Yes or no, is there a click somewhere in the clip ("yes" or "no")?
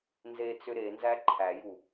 yes